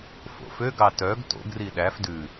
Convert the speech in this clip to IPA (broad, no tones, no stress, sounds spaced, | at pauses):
f o̰ f ø ɡ ɑ t œ ɡ t o̰ ɡ r i ɗ æ f d ʉ